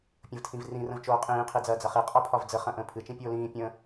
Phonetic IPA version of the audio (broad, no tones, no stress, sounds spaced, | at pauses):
pʲ ə̃ v tʰ ĩ v r ĩ r ə̃ v t͡ʃ oː qʼ ĩː qʰ i d͡z ɐː d͡z ɐ χ i qʼ ɒ pʰ ɒ v d͡z ə χ ɐ̃ ʔ ə̃ː pʰ ɨ t͡ʃ ĩ pʲ oː l ĩː pʲ ə̃